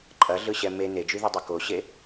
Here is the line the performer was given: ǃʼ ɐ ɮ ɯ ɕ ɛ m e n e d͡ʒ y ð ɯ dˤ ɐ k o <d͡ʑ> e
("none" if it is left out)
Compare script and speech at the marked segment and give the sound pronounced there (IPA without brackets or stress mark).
ɕ